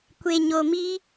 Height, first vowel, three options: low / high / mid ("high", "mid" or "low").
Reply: mid